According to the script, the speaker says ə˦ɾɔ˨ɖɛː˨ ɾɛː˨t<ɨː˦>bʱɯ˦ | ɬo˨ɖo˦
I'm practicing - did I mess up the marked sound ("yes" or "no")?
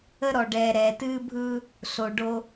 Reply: no